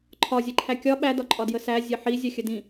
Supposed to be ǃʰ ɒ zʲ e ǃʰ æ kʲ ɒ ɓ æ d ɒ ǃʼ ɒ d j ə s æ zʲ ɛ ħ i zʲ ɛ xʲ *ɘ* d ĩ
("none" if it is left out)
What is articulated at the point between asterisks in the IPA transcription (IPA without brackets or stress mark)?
ɘ